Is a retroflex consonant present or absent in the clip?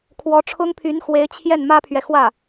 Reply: present